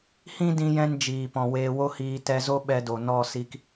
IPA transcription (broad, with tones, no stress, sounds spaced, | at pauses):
h ĩ˦ d ĩ˧ j ɛ̃˧ n d͡ʒ iː˨ p ɔ̃˨ w eː˧ w o˦ h iː˧ t ɛ˧ z o˦ ɓ ɛ˧ d o˨ n ɔ˦˨ s i˧ k